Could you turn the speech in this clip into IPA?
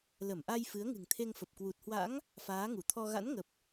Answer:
lə˧˩mʔa˧j fɨ˨˦ə̯ŋɨ̤˨˩ŋt̪ʰe˧ŋfə˨˩p̚ kwu˨˩t̚hwa̰˧˥ŋ | faː˨˦ŋu˧˩t̪ʰɔ˧ ɣa̰˧˥nŋə˨˩p̚

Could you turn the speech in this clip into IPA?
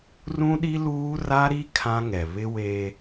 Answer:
rũ˦ɗi˦ luː˦ ra˦ɾi˦ kʰã˦ŋɛ˨ βɪ˦weː˦

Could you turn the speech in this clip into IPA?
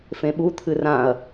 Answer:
fẽɓut̪ʰɨ rãɐ̯

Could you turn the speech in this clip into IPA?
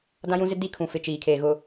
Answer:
dã˦jũ˦zɪ˦ di˦kʰũ˨ fɪ˨ t͡ʃiː˨kʰeː˨ ɣʊ˨

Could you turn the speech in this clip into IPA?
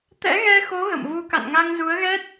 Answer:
t̪ɛ̰˧˥ɣɛ˧xo˨˦ ɣə̰˧˨mvu˧ ka̰˧˨nŋa˧ŋzu˨˦ə̯ɣɛ˦˥t̚

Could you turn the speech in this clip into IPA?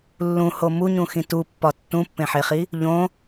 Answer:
lːũho muɲũxĩ tupːɒ tːũpːẽħeχi | ʎõ

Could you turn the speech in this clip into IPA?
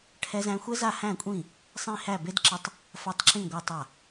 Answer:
ʈʰɛ˧zæ̃˧ xʷɛ˧za˧˩hæ̃˧˩kʷʼĩ˧˩ | sˤĩ˧˩hæ˧˩ be˧dǁə˧tˤ | fa˧˩tˤǁĩ˧˩ ɡʷa˧˩tˤa˧˩

